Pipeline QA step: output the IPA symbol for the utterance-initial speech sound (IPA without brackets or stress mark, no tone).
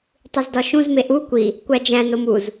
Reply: tˤ